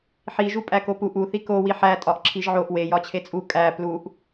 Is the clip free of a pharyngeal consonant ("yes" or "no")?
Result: no